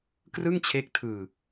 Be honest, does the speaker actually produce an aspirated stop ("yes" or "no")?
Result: yes